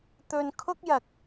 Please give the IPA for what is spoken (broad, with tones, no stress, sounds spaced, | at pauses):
t̪ ɵ˧ n kʰ ʊ˥ k̚ j ɐ˨ k̚